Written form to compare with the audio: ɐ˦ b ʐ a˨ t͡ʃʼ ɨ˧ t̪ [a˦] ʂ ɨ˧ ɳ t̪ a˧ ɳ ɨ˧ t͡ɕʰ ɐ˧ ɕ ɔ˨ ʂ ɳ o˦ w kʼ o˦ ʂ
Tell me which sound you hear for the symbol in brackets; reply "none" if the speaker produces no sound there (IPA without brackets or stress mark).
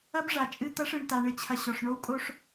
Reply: ɐ˦